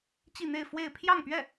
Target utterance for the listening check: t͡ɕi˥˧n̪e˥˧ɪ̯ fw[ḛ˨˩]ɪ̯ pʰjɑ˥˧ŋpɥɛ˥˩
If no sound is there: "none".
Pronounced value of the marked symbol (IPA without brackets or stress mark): e˥˧